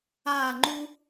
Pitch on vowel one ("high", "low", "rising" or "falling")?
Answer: falling